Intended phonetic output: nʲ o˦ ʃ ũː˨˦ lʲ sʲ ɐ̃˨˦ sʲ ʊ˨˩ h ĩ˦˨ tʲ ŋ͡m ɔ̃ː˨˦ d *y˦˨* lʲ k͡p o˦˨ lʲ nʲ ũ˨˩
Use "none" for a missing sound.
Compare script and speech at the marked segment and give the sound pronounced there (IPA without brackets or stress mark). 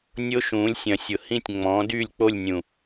y˦˨